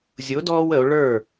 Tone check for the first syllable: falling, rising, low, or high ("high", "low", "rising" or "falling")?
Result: rising